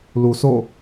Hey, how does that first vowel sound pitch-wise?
low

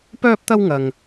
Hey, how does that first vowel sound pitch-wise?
high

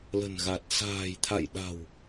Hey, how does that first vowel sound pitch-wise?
low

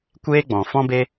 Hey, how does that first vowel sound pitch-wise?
high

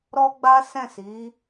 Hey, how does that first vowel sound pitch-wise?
high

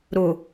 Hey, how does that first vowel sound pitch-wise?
low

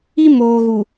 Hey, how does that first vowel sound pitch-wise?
high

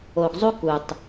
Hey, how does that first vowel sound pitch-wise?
low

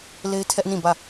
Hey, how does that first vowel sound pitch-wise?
high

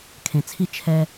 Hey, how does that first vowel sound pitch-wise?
low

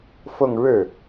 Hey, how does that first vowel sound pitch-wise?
falling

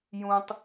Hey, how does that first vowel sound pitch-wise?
low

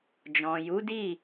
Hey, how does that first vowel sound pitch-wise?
low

